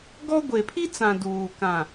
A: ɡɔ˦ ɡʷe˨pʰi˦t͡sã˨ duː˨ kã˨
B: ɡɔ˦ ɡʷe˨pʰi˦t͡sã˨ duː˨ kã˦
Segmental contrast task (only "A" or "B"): A